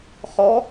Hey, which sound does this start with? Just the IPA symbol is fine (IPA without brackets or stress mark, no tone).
χ